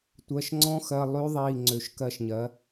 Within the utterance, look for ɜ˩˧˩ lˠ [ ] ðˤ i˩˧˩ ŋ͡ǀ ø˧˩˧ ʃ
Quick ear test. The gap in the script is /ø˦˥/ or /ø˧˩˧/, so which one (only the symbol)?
ø˦˥